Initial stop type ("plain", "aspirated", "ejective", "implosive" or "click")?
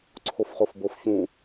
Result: click